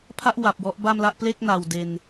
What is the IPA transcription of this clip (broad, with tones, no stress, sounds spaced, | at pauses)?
pʰ a˥˩ ʔ w a˨˩ p̚ w ɔ˦˥ ʔ b a˥˩ m l a˥˩ ʔ p l e˥˩ k̚ n a˨˩ w d e˧ n